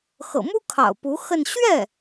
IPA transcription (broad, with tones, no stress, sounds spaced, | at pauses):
x ɤ̰˨˩ m u˥ kʰ ɑ̰˨˩ ʊ̯ p u˧˥ x ə˥˧ n ɕ ɥ ɛ˥˩